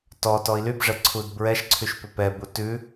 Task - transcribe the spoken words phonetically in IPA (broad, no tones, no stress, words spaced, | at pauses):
tɔ tɔi̯lybʐɛ ǀʰudbɹɛʃǀʰyʃ pʏpɛbu tʉ